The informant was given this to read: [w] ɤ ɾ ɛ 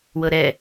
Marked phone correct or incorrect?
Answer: correct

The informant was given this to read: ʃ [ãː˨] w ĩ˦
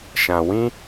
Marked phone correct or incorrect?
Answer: incorrect: ã˨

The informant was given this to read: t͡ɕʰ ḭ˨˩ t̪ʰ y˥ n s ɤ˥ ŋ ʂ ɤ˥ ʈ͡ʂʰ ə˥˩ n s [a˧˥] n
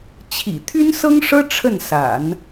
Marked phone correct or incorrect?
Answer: incorrect: a̰˨˩˦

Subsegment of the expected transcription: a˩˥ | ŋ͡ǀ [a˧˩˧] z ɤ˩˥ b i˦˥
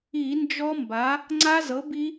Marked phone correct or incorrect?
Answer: incorrect: a˦˥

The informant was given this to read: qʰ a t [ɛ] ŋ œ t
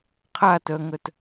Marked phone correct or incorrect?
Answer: incorrect: œ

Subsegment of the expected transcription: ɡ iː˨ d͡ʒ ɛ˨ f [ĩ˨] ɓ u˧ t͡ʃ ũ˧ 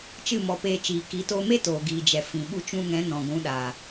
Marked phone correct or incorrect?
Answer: correct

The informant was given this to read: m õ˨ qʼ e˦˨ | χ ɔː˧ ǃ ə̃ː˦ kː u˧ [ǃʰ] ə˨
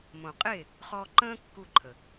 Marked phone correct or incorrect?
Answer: correct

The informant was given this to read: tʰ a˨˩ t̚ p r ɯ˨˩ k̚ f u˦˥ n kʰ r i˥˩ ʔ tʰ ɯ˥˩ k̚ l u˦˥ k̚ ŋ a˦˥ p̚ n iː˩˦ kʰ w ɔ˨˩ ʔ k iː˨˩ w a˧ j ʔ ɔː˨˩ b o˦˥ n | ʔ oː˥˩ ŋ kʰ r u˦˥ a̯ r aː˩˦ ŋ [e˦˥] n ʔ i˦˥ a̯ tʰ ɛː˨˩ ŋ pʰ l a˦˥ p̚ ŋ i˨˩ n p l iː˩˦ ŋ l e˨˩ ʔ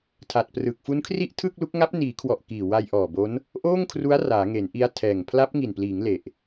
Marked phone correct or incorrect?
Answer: incorrect: e˩˦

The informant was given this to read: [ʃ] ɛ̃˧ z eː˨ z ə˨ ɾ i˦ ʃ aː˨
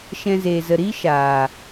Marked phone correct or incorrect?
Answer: correct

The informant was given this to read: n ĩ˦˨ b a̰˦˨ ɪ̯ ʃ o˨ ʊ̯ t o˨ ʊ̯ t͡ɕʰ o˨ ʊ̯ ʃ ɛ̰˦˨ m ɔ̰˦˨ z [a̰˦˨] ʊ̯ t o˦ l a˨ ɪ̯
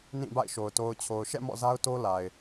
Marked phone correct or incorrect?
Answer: incorrect: a˦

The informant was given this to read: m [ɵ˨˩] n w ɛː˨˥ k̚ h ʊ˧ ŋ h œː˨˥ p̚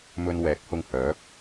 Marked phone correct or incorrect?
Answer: incorrect: ɵ˧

